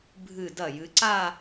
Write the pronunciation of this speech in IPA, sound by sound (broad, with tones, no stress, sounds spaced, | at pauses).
bʱ ɨ˧˩ d ɐ˧˩ j ɨ˩˧ ǀ a˥˧